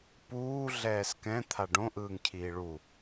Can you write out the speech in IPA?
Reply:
p uː ɮ ɛː s k ɛ̃ t̪ʰ a ɖ õ ʔ ɯː ŋ cʰ iː ɭ u

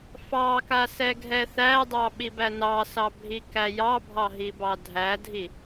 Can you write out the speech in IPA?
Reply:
f ɑ k a s ɛ ɡʱ ɛ θ æ dˤ ɑ ɓ i b æ n ɑ s ɑ bʱ i k æ j ɑ bʱ ɑ ɦ i b ɑ dʱ æ dʱ i

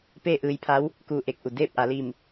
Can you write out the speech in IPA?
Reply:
p eː˥˨ ʔ ɯː˧ j pʰ a˧˥ w | k uː˧˩ ʔ e˧˩ k̚ ʔ u˩ d eː˥˨ p̚ ʔ a˩˧ l i˧˩ m

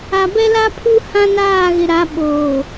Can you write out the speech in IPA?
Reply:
a˨ b ɛ˦ l a˦ pʰ u˦ h ã˦ n aː˦˨ ɣ ɪ˨ ɾ a˨˦ ɓ oː˨

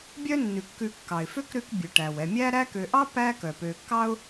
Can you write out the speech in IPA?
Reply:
bʲ œ˦ nː ʉ˩ kː ʉ˨ kː ɑ˩ ɪ̯ f ø˥ k ɾ ʉ˦ k bʲ ʉ˩ ʈ æ˩ w ɛ˨ mʲ æ˥ ɾ æ˦ k ø˨ ʔ ɑ˥ p æ˦ k œ˩ p ø˨ kː ɑ˥ ʊ̯

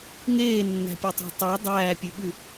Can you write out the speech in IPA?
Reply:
ŋ eː nː æ̤ pʲ œ tˤ ɑ̤ tˤ o dˤ æː pʲ ʉ ɓ ʉ

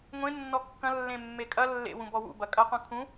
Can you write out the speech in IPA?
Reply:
ŋʷ ẽ nː ɔ kː ɐ̃ lː ẽ mː e kʼ ɐ lː ḛ w ũ b ɔ w ṵ b ɐ kʼ ɐ q ũ kʰ ũ

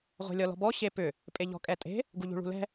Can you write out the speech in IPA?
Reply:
ʁʷ ɛ̤ lʲ ɔ l ɔ̤ b ɔ ɕ e p ʏ | pʼ e ʎ ɔ̤ kʼ ɛ tʼ e̤ | ɡ u ʎ ṳ ɭ ṳ l ɛ̤

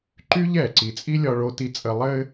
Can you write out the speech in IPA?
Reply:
ǃ y˦ ʎ ɛ˨ ǀ i˨ t͡sʼ i˦ lʲ ɒ˨ ɭ o˨ t i˨ t͡sʼ ə˨ lˠ ɘ˦

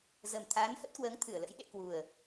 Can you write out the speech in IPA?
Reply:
z ə˨˩ m t̪ʰ aː˨˦ n h ə˦˥ t̚ k w əː˨˦ ŋ t̪ʰ ɨ˧˩ ə̯ l ə̰˧˥ j ɗ ḛ˧˨ k w u˨˩ ə̯

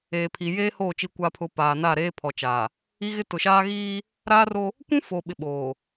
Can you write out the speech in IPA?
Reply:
eː˨ pʰ i˨ j eː˦ h oː˦˨ t͡ʃ i˨ kʷ a˨ pʰ ʊ˨ p aː˨ n a˦˨ ɾ eː˦ pʰ ɔ˨ t͡ʃ aː˨ | i˦ ɣ ɪ˦ t ʊ˨ ʃ aː˦ ɣ iː˦ | ɾ aː˦ r o˦ | kʷ ũ˦ f o˨ ɓ ɪ˨ ɓ oː˨

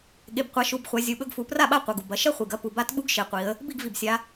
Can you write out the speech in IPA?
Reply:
ɠ e˩˧˩ b qʷ a˩˧ ʃ u˩˧˩ b χʷ a˩˧ zʲ u˩˧˩ ɓ ɵ˥˧ ɡ f u˩˧ p r a˥˩ ɓ a˥˩ qʷ ɐ˩˧˩ ɡ u˩ b ɐ˩˧˩ ʃ ɐ˥˧ χʷ i˩ ɡ ɐ˥˧ p u˩ b a˦˥ t ɓ u˦˥ ɡ ʃ e˩˧ qʷ i˩˧ ə̯ | b i˥˩ ɡ v i˩ b sʲ a˩˧

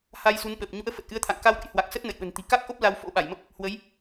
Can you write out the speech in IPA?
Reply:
h a˧ j s u˨˦ n ɓ əː˨˩ p̚ ɲ ṵ˧˥ ə̯ f ə˨˩ t̚ ʔ ɨ˨˦ ə̯ t̪ʰ a̰˧˨ ŋ k a˧ w ɗ ə̰˧˥ j h w a˨˩ k̚ s ə˦˥ t̚ n ə̰˧˨ j ɓ ə̤˨˩ n t̪ i̤˨˩ k a˦˥ k̚ ʔ o˦˥ p̚ l a˧ w f o̰˧˥ ɓ a˧˩ j m ə˦˥ p̚ | h w ə˨˦ j

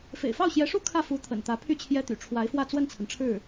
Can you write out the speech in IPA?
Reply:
f ḛ˨˩ ɪ̯ f ɑ˥˩ ʊ̯ ɕ j ɛ˧˥ ʂ u˥ kʰ ä˥˩ f u˧˥ t̪ʰ ə̰˨˩ n t̪ ä˧˥ pʰ y˥˩ t͡ɕʰ j ɛ˥ t̪ y̰˨˩ ʈ͡ʂʰ w a˧˥ ɪ̯ f w ä˥˧ t͡s w ə˥˩ n t͡sʰ ə˩ n ʈ͡ʂʰ ɻ̩˥˩

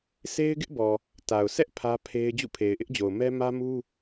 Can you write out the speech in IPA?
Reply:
sʰ e˦ ɪ̯ ɡ ɪ˦ ʔ b ɔ˨ | t a˨ ʊ̯ sʰ ɛ˦ ʔ pʰ ä˦ pʰ e˦ ɪ̯ d͡ʑ ṵ˦˨ pʰ e˨ ɪ̯ ʔ ɪ˦ ʔ d͡ʑ o˨ ʊ̯ m ɛ˦ m ä˦ m u˦

